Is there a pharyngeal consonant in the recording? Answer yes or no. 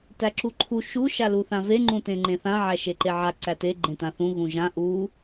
yes